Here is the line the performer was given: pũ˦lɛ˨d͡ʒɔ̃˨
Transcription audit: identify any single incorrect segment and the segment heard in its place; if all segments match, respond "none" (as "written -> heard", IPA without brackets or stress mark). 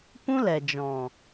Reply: none